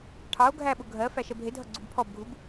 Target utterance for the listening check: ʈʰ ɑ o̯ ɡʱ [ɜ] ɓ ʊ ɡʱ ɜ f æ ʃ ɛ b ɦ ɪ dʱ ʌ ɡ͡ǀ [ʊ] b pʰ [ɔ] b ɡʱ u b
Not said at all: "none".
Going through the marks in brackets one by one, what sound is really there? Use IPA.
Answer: æ, u, ɔ

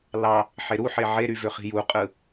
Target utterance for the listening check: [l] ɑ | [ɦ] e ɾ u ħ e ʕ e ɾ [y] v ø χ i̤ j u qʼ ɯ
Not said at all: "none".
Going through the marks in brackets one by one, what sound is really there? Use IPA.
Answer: l, ħ, y

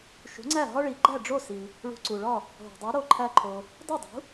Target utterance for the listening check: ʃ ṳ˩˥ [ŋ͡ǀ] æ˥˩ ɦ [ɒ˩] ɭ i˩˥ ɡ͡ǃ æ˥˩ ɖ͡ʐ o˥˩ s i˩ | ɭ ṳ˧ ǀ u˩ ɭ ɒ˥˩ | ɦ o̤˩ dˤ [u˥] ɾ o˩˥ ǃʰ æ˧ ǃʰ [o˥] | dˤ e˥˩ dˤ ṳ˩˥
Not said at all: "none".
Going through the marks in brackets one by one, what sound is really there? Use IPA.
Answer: ŋ͡ǀ, ɒ˥, u˩˥, o˩

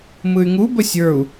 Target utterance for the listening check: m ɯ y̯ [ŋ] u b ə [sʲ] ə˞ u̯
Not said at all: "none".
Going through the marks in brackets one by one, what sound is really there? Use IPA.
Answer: ŋ, sʲ

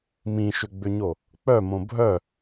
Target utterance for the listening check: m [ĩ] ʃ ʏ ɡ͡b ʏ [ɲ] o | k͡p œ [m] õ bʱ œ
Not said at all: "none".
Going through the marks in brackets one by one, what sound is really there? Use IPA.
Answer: ĩ, ɲ, m

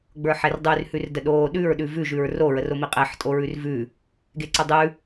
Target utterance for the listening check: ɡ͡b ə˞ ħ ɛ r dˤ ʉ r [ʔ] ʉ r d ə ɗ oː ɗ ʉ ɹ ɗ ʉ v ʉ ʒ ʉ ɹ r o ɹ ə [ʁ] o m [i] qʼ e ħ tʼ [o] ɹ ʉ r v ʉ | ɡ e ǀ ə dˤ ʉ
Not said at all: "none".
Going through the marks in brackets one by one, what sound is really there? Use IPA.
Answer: h, r, i, o

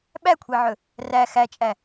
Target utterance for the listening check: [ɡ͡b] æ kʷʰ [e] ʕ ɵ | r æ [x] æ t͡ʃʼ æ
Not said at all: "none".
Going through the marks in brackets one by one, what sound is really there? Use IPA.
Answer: ɓ, e, x

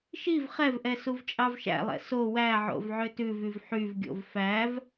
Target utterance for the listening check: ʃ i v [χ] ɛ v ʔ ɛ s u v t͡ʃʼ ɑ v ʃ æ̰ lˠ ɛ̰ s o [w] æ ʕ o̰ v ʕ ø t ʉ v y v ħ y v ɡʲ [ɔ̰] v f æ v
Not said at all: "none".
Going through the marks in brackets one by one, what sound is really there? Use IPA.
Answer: χ, w, o̰

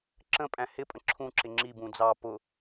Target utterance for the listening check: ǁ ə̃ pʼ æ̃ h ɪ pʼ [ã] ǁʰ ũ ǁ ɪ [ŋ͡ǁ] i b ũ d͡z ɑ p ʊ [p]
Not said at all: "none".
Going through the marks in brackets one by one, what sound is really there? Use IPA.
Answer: ə̃, ŋ͡ǁ, none

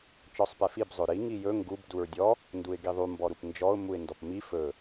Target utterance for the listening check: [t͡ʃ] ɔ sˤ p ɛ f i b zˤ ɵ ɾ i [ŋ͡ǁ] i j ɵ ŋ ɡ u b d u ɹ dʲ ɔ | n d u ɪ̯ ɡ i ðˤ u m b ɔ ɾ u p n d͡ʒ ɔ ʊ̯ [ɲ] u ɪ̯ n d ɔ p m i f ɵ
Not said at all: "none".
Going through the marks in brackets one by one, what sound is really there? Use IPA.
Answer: t͡ʃ, ŋ, m

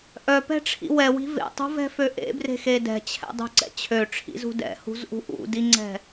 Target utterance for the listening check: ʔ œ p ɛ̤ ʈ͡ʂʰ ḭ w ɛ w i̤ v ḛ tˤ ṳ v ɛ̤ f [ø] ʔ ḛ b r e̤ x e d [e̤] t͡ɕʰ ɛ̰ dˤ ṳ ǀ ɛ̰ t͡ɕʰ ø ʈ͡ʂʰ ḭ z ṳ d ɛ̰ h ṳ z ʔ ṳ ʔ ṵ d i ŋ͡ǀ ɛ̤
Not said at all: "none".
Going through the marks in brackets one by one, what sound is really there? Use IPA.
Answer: ø, ɛ̤

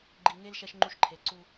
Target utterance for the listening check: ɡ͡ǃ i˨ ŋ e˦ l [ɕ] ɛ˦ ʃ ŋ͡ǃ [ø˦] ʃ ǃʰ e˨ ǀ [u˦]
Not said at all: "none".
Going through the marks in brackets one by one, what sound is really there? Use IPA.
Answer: ʃ, u˦, u˦

